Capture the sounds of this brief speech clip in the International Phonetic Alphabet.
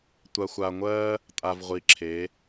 tʷ a˩ xʷ a˩ ŋʷ ɜ˧ | tʼ a˩ v ʁʷ i˩ ǁʰ e˩˧

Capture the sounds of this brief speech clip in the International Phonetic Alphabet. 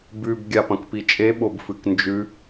b ʉ b ɡʲ a p ɐ̃ k p i t͡ʃʼ e ɓ o b f ɨ k n d͡ʒ ʉ

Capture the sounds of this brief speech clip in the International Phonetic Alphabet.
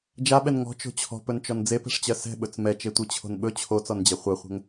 d͡ʒ a ɓ ɛ n ŋ ɔ̤ t͡ʃ o̤ t͡ɕʰ ɔ̤ p ɵ n t͡ʃ ɔ n d͡z e p ɛ̤ ʂ t͡ɕ ɜ s ɛ̤ ɓ ɵ t͡s m ɛ t͡ʃ e tʷ e t͡ɕʰ o̤ n ɓ ɵ t͡ɕʰ o t͡s ɔ n d͡ʑ ɛ χʷ ɜ χʷ ɛ̤ ŋ

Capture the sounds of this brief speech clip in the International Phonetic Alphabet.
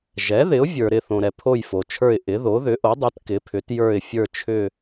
ʒ ɛ˩˥ ð ɪ˩˥ ʊ̯ vʲ ə˞˩ ɾ ɪ˦˨ θ õ˩ ɾ ɛ˩ pʰ o˦˨ j f o˩ t͡ʃʰ ə˞˦˨ ɪ̯ ʔ ɪ˩˥ ð o˩˥ ð ʏ˩˥ ʔ o˩˥ dˤ ɨ˩˥ t k ɪ˩˥ pʰ ʏ˩˥ t j ə˞˦˨ ɪ̯ fʲ ə˞˦˨ t͡ʃʰ ʏ˦˨

